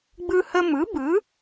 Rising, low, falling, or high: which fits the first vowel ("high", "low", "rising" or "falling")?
high